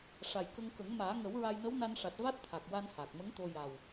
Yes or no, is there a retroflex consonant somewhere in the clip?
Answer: yes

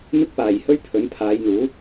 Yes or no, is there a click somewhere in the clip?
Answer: no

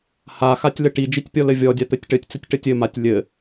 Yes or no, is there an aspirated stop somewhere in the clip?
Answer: no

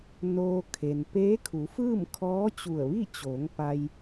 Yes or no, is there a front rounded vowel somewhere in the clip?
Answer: no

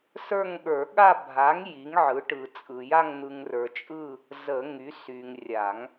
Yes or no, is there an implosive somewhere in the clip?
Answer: yes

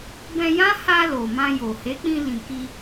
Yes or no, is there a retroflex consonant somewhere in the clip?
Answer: no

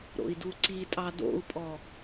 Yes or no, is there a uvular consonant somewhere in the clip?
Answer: no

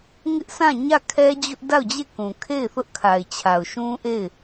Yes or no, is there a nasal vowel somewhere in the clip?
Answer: yes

